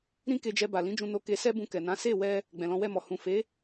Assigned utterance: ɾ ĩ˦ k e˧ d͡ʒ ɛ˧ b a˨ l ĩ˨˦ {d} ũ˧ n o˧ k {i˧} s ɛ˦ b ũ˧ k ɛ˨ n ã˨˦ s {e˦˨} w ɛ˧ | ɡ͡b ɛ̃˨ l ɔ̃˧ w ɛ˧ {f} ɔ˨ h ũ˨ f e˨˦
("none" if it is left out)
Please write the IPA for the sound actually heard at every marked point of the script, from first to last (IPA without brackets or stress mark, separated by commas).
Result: d͡ʒ, e˧, e˦˨, m